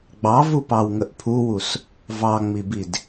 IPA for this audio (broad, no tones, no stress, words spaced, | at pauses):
ɡ͡bɑvu pɑwŋəʔpʰuwus | vɑŋ͡mibid